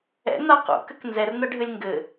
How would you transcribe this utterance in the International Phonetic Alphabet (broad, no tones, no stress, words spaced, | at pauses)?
ɛ̰n̪a qṵkɘk nzɛrn̪ɐɖʱɘlʲ ŋɡɘ